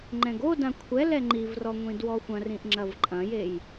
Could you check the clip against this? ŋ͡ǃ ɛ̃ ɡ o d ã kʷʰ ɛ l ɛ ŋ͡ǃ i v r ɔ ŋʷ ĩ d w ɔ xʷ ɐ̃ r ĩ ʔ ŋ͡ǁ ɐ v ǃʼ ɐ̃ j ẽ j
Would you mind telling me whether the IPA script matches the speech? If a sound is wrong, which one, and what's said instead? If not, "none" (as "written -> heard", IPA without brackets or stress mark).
ẽ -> e